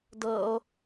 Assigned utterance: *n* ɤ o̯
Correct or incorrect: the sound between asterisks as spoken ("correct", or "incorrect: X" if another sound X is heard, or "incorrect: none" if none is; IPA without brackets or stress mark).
incorrect: d